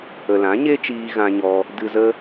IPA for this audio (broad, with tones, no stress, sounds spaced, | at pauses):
ə˨ l ã˨˦ ɲ e˦ t͡ʃ iː˧ ɣ ã˧ ɲ ɔ˧ | d ɨ˧ z ə˦